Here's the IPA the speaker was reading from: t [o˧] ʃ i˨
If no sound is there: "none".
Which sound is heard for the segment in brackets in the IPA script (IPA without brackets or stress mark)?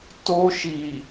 o˧